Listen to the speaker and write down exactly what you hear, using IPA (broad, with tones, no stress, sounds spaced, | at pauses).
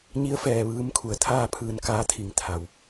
ɲ i˧˥ ə̯ f ɛː˩ ʋ ɯː˧˥ m kʰ u˩˧ ə̯ t̪ʰ aː˥˨ pʰ ɯː˧ n k aː˧˥ t̪ʰ i˧˩ ŋ t̪ʰ a˩ w